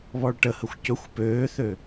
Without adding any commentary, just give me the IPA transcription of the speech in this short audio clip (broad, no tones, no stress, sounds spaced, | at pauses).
β ɔ ɭ ʈ ə h ə xʷ c ɵ xʷ p øː θ ø